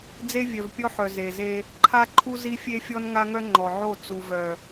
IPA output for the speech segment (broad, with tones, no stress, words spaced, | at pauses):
d͡ze˦vʲœ˨vpʲɔ˦ħœ˨ ze˨ze˦ | ǃʰa˦ ǃʰu˦zi˦fʲe˦fʲɔ˦n ŋa˦ŋœ˦ ŋ͡ǃɔ˨ʕo˦˨ t͡su˨vœ˨